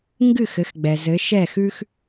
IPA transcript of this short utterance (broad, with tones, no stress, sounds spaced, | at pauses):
ŋ ɡ ɨ˥˨ x ɘ˨˦ x ɡ͡b ɛ˨ z ɘ˨˦ ʃ ɛ˥˨ x ʉ˥ x